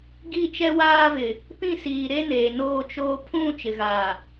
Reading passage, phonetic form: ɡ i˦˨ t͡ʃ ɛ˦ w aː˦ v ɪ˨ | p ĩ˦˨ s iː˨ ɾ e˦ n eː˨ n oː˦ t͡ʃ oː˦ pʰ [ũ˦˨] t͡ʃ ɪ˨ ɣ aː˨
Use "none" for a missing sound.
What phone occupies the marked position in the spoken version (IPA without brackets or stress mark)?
ũ˦˨